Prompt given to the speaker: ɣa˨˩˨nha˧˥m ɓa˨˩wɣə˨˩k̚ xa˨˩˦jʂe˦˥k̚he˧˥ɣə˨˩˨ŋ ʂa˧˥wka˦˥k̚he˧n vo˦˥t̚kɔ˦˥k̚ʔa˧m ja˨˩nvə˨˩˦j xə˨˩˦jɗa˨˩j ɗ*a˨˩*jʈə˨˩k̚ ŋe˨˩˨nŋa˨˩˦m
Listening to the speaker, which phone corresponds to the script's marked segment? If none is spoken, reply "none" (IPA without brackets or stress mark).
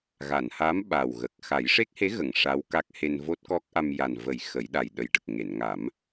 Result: ə˨˩